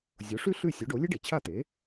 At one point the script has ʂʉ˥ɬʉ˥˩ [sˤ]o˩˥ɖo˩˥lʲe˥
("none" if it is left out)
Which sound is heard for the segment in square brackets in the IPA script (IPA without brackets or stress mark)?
sʲ